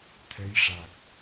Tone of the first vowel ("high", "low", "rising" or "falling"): rising